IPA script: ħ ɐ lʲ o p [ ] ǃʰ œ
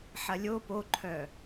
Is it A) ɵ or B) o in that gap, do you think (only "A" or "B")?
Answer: B